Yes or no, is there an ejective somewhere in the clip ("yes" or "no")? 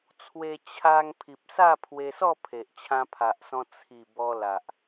no